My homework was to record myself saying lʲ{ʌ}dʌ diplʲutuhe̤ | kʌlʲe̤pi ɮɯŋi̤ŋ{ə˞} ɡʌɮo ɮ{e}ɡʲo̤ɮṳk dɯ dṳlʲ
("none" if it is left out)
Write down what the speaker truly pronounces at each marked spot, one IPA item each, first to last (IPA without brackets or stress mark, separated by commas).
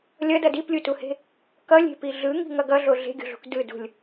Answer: ʌ, ʌ, e̤